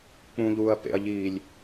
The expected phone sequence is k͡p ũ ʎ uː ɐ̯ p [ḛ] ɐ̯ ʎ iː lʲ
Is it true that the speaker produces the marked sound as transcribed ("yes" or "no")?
yes